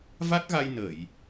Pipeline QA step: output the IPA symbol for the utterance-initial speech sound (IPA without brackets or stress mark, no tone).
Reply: v